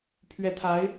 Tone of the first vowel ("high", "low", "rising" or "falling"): rising